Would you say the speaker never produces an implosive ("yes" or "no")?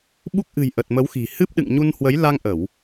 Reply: no